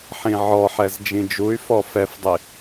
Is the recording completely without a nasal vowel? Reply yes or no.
no